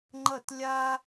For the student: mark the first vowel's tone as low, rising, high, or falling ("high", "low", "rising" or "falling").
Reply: falling